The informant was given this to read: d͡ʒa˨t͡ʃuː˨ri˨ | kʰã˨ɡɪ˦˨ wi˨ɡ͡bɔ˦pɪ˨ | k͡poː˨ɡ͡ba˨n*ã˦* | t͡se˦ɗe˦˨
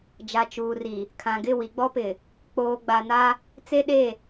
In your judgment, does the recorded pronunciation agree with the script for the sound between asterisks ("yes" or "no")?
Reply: no